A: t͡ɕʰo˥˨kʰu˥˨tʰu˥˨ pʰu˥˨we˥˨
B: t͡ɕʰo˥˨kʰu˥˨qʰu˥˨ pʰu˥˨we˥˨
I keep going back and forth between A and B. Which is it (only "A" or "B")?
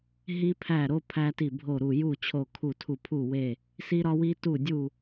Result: A